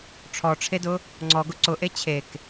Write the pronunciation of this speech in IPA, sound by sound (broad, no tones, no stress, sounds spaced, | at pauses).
ʈ͡ʂʰ ɔ ʈ͡ʂʰ e d ʊ | ŋ͡ǀ ɔ ɡ ʊ ǀ ʊ ʔ e t͡ɕʰ e k